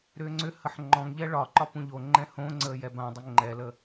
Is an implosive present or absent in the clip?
absent